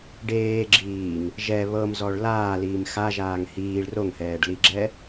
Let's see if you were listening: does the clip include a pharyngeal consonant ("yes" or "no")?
no